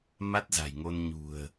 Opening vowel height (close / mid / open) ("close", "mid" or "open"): open